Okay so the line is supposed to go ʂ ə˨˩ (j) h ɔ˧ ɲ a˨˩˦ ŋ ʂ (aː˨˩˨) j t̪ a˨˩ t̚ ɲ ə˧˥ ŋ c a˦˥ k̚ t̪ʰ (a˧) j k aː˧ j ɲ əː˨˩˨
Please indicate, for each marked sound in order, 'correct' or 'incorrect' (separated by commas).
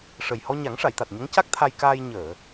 correct, incorrect, correct